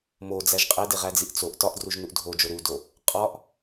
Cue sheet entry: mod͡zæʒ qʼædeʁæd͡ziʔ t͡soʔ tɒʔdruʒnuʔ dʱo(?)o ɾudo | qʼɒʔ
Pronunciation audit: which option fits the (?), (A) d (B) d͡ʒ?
B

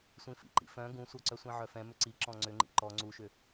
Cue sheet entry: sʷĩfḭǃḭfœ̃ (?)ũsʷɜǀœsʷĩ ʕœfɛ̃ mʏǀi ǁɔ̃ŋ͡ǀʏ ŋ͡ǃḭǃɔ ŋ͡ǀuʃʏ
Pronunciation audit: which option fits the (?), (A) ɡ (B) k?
A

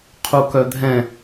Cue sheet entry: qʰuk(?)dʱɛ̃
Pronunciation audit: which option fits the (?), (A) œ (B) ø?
A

